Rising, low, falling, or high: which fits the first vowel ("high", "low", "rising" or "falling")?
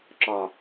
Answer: low